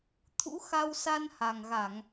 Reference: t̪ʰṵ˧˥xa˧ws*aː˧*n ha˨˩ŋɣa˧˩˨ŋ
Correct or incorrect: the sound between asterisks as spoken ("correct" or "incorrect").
incorrect